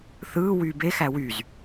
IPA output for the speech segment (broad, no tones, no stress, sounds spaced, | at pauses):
θ ɯː w yː b e x æ w y z